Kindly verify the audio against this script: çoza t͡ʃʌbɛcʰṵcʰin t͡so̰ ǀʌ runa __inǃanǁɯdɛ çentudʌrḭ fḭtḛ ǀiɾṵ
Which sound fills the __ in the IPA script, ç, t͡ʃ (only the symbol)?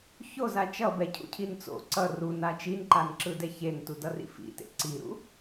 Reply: t͡ʃ